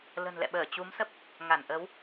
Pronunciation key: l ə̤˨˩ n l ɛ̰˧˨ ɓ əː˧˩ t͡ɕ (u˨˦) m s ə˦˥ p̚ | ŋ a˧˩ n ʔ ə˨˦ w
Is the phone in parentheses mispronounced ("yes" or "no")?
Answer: no